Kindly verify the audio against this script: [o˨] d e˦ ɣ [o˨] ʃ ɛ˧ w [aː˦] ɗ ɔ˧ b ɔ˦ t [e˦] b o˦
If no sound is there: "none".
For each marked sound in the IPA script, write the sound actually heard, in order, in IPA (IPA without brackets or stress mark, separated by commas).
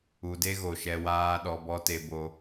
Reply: u˨, o˨, aː˦, e˦